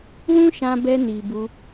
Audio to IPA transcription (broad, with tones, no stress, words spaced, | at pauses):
wũ˦ʃã˧bɛ˧ni˨ bu˧